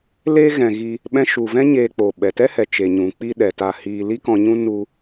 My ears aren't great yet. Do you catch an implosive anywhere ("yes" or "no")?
yes